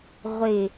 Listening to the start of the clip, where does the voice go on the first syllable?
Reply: low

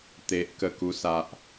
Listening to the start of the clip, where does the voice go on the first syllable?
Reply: high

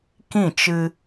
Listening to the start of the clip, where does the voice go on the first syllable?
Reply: falling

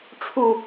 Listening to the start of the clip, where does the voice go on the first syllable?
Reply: falling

